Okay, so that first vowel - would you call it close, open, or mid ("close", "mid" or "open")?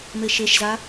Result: mid